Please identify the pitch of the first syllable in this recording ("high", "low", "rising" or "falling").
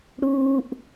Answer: low